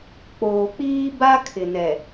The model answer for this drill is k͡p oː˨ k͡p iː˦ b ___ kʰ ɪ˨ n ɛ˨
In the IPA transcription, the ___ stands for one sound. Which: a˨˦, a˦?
a˦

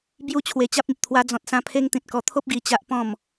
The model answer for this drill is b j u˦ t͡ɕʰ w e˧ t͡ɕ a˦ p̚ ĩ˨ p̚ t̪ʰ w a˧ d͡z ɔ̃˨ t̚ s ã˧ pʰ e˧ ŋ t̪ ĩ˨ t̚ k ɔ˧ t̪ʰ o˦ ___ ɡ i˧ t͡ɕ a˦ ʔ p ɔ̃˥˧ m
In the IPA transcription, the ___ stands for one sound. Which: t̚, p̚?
p̚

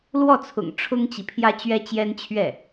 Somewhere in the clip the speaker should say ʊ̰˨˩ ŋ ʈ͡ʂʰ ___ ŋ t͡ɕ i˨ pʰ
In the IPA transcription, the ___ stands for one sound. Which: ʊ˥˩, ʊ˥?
ʊ˥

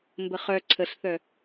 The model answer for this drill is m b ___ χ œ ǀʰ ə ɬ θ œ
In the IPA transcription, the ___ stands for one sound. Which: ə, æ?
ə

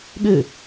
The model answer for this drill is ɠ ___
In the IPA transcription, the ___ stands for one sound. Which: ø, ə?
ø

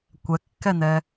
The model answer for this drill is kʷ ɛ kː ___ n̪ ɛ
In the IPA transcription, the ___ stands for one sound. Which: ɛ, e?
ɛ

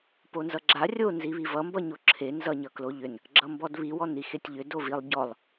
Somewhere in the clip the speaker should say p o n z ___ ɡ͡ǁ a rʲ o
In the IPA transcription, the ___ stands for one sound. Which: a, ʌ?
ʌ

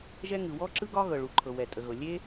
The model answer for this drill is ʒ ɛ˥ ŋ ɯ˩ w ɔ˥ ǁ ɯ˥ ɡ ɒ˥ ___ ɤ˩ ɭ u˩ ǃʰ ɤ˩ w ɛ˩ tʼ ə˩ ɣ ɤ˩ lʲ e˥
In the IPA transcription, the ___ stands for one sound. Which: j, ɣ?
ɣ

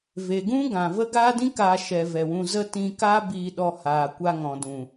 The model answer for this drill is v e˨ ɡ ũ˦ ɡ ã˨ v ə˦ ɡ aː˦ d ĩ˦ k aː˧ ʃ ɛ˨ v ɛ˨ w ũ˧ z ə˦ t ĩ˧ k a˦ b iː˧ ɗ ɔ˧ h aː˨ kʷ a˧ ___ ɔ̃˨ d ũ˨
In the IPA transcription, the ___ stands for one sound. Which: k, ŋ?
ŋ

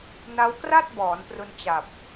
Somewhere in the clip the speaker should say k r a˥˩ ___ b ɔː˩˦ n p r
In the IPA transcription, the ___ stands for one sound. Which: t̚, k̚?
t̚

